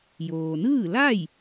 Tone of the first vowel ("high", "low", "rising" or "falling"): low